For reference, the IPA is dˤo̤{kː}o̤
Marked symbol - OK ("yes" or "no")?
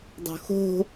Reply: no